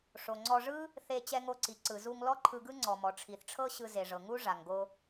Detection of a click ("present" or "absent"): present